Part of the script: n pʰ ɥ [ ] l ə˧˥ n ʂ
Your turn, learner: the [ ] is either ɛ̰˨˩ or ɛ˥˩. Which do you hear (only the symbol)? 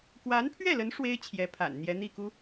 ɛ˥˩